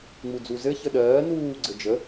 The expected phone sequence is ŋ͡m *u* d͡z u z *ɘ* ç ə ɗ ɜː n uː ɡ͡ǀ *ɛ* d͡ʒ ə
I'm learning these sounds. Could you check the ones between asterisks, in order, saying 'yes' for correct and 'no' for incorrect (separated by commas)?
yes, yes, no